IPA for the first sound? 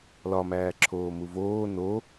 l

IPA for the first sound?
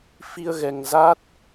f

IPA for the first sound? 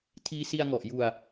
tʰ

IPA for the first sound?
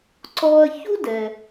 ǀ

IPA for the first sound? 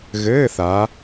ɣ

